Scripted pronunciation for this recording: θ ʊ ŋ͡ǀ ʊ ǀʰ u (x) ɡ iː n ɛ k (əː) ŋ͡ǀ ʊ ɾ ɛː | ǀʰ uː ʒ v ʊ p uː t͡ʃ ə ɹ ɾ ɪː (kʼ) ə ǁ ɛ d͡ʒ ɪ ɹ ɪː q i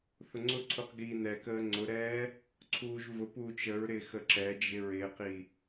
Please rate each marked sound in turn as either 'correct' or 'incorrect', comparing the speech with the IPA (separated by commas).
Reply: incorrect, correct, incorrect